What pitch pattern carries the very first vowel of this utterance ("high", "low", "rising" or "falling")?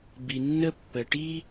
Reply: low